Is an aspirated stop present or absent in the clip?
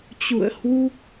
absent